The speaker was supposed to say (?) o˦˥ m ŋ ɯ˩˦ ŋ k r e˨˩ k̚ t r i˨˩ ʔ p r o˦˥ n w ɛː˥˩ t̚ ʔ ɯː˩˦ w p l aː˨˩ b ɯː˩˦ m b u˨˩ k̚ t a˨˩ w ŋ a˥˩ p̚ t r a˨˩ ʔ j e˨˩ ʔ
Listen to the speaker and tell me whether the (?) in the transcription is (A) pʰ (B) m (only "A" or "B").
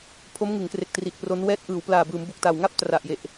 A